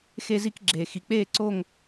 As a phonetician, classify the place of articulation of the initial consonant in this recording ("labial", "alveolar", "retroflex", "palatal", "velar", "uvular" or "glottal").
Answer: velar